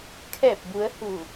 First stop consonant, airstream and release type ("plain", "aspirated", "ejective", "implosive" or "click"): aspirated